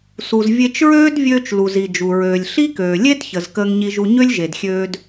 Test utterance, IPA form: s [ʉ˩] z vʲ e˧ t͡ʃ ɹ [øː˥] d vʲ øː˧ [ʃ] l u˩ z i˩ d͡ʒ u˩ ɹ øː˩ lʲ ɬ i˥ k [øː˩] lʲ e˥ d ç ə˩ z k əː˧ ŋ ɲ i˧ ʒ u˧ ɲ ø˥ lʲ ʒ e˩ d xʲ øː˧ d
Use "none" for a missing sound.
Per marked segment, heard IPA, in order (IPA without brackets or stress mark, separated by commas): u˩, øː˥, t͡ʃ, øː˩